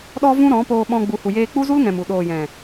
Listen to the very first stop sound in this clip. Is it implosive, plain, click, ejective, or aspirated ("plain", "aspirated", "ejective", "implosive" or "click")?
implosive